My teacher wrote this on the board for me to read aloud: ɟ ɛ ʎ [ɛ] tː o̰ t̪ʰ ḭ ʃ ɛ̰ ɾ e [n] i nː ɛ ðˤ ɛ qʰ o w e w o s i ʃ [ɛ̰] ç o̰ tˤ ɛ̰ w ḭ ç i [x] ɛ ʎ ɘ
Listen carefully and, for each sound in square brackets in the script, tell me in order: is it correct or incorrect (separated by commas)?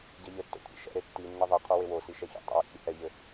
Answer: incorrect, incorrect, incorrect, incorrect